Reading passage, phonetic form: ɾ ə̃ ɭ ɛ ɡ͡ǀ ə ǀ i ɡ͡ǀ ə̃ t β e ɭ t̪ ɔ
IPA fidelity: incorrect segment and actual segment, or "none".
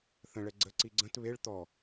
ɾ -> θ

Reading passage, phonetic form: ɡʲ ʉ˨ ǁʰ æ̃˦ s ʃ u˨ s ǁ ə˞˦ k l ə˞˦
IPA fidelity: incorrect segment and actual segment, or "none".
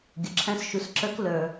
ʉ˨ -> ʊ˨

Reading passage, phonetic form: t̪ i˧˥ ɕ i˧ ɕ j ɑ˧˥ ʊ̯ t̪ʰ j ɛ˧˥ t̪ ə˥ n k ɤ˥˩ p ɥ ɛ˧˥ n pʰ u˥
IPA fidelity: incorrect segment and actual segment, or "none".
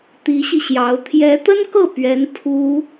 none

